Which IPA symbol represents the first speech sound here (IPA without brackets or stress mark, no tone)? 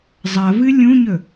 zˤ